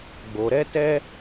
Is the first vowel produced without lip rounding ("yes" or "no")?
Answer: no